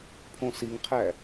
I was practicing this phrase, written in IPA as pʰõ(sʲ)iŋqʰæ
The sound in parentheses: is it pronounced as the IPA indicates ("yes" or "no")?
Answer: no